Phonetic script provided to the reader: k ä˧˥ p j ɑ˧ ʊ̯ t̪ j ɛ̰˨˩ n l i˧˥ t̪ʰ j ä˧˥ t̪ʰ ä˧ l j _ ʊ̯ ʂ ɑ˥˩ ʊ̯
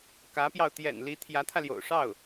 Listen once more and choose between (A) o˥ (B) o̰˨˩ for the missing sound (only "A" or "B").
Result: B